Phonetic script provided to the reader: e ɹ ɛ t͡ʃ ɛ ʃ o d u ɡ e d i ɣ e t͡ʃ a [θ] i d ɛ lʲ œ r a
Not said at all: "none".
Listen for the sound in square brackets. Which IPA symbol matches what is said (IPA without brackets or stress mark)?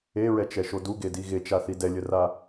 θ